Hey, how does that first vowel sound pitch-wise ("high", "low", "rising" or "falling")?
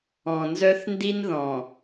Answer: low